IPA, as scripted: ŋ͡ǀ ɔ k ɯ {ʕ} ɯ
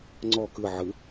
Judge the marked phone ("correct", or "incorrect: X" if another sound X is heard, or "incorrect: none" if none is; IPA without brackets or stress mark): correct